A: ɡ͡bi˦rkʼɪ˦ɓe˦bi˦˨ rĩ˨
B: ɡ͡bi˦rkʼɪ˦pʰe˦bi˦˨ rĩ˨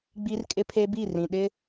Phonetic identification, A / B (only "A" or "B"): B